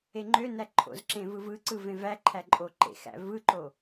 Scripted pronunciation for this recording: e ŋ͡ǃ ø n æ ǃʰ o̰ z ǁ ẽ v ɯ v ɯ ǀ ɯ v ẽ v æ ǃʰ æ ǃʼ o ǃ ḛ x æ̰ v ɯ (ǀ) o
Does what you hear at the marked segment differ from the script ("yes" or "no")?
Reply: yes